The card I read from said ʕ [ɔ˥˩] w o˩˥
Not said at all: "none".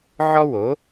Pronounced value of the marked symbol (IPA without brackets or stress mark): ɔ˥